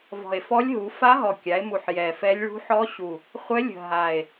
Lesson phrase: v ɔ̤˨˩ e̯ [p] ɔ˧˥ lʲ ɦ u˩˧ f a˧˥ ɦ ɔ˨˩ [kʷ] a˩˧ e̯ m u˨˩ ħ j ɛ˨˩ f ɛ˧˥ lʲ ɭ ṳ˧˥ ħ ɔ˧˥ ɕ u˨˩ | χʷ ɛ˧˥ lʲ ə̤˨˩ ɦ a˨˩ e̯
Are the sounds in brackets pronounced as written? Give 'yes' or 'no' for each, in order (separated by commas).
no, no